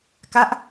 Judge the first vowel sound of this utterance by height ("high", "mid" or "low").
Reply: low